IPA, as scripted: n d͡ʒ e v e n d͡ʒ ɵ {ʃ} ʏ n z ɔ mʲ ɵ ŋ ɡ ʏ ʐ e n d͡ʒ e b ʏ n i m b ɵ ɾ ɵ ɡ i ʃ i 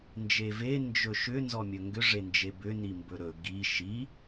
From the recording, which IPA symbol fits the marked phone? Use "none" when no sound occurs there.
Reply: ʃ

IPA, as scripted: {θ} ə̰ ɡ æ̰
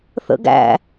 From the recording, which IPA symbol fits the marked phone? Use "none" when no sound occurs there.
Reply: θ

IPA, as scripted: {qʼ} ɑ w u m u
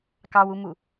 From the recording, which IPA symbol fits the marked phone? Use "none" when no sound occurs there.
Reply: k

